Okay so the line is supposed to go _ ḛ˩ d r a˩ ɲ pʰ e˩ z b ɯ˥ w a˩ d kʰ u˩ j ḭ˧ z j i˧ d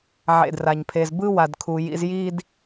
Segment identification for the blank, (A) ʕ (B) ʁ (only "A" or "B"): A